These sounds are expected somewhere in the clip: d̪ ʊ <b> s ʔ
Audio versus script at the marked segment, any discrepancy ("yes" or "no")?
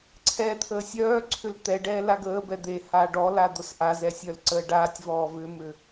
yes